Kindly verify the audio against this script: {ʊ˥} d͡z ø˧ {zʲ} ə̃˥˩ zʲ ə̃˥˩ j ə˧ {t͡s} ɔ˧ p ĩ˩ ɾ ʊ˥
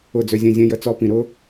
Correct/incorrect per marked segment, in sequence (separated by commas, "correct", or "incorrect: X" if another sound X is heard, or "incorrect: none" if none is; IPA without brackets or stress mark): incorrect: ʊ˥˩, correct, correct